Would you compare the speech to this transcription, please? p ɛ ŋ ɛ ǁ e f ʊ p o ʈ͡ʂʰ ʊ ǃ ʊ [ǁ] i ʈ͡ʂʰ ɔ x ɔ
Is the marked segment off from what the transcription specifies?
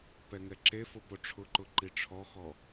yes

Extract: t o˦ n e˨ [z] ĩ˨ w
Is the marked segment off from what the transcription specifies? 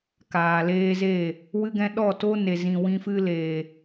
no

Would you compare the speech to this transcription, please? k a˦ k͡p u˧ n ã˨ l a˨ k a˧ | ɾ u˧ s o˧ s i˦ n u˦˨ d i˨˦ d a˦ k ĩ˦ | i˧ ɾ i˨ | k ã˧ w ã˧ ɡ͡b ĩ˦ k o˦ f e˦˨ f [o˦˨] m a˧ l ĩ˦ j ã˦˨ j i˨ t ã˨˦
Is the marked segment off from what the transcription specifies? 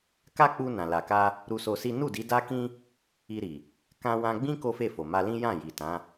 yes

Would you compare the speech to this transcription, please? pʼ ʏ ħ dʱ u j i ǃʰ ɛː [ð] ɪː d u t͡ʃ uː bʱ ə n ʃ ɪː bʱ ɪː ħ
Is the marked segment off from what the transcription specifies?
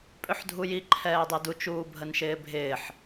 yes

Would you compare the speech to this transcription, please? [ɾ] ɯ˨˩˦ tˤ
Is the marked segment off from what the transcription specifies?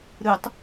no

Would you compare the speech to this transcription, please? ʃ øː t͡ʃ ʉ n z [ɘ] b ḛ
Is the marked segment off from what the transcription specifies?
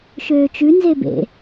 yes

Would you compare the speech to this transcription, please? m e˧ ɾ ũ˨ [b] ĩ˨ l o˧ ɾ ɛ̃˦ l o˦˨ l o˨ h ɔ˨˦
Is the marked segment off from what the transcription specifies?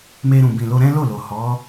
no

